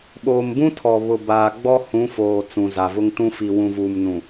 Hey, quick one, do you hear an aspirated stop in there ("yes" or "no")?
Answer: yes